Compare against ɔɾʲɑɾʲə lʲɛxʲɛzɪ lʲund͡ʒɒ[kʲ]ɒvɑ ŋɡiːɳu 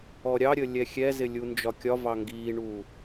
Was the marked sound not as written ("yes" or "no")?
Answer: no